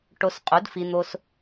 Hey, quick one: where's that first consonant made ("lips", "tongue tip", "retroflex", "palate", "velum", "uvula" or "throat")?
retroflex